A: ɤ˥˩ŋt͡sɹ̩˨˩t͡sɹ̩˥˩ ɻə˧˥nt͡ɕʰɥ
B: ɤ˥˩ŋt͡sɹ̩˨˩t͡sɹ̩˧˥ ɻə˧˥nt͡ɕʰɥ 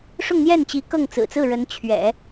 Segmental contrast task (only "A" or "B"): A